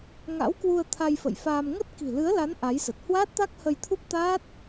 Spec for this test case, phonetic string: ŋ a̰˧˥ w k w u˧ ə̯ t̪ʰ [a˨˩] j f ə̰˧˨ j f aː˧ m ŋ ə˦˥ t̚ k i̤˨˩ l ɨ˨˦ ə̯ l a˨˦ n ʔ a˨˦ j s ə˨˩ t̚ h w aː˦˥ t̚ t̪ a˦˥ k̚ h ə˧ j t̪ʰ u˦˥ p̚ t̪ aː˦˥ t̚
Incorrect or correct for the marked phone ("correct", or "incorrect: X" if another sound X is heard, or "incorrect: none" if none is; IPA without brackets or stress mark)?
incorrect: a˧